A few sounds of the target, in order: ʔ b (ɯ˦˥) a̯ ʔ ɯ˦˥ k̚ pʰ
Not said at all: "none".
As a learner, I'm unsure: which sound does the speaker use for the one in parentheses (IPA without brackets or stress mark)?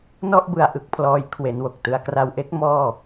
ɯ˧